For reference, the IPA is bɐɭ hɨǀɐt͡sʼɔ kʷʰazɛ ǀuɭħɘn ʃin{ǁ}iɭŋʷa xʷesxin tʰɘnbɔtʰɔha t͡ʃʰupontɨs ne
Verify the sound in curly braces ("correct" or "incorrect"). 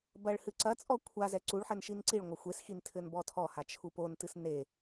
incorrect